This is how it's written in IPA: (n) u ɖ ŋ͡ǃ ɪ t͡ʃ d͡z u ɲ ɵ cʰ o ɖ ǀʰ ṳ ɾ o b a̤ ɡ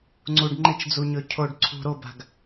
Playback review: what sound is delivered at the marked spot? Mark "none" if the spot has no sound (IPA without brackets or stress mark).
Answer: ŋ͡ǀ